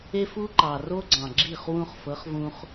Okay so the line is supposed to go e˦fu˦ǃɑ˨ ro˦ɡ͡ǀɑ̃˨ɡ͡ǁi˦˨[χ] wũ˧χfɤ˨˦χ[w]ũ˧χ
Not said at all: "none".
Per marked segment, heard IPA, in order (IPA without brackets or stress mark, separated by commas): χ, v